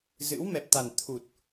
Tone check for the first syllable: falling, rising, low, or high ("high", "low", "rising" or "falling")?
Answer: rising